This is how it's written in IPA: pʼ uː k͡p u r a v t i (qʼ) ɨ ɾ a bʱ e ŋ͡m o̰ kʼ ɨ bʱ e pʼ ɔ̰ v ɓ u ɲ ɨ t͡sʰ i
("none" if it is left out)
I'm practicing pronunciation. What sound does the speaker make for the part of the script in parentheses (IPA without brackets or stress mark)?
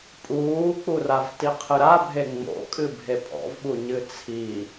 qʰ